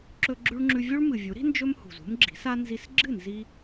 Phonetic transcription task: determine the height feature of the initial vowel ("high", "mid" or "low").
mid